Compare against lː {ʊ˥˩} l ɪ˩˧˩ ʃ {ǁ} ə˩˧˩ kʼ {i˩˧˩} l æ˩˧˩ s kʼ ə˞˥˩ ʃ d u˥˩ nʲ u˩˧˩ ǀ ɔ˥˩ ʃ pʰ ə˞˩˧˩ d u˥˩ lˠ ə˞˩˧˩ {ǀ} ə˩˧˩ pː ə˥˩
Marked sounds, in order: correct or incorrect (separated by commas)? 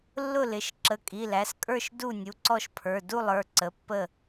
correct, correct, correct, correct